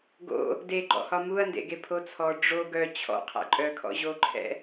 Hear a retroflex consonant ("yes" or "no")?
yes